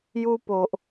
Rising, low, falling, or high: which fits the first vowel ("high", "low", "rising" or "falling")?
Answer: high